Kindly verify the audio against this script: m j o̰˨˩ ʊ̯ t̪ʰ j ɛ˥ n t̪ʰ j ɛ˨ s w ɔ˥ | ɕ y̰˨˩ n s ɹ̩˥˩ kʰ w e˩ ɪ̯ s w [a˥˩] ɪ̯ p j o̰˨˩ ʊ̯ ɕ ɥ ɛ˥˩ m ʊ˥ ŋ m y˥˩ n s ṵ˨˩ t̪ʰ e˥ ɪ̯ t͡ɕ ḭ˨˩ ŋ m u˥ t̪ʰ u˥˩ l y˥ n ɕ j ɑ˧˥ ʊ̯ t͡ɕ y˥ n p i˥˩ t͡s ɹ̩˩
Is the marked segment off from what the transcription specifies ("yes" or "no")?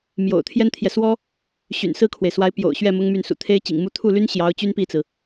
yes